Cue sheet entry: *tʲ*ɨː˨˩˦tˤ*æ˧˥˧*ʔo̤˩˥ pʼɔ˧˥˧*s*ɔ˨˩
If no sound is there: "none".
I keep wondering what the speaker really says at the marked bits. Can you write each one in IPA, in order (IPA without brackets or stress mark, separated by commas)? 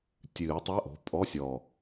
tʲ, æ˧˥˧, sʲ